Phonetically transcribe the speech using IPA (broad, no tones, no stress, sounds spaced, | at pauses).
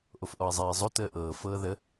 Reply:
ʔ o f ʔ ɔ i̯ zˤ ɛː i̯ zˤ o t əː ʔ ɤː f ɤː ð ə